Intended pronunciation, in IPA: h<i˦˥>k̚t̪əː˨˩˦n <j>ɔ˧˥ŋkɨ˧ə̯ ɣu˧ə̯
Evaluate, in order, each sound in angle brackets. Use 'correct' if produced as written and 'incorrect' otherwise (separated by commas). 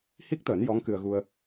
correct, correct